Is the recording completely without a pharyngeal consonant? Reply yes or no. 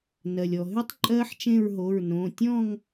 no